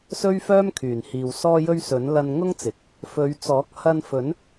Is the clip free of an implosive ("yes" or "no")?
yes